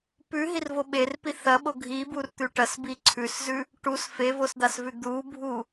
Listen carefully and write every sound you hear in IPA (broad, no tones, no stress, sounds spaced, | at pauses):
p ʉ ɦ i r v o ɓ e r p i θ ɐ ɓ o ɡʱ i b u r t̪ ʉ ʈ ɐ s b i ǀʰ ʉ s z ʉ | ʈ u s f e v o s d̪ a s v ʉ d̪ u bʱ u